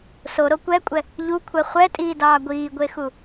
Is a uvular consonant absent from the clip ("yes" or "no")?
no